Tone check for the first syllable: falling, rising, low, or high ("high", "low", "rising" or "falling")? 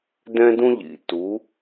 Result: high